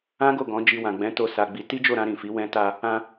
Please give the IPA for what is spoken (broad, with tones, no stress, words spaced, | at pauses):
ã˦ɡo˦˨ ɡɔ̃˨˦ d͡ʒi˧wã˨ɡ͡bɛ̃˨˦to˧ sa˧ɡ͡bi˧ ti˦d͡ʒo˦˨ɾã˧ ɾĩ˨fi˨˦ wɛ̃˧ ta˧ | ã˧